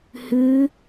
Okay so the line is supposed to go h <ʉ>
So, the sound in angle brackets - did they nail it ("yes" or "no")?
yes